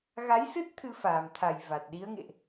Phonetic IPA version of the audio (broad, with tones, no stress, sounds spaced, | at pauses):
ɣ a˨˦ j s ɨ˦˥ t̚ t̪ʰ ɨ˧ f aː˨˩ m t̪ʰ a˨˩ j v a˨˩ t̚ ɗ i˨˦ ə̯ ŋ ḛ˧˨ ʔ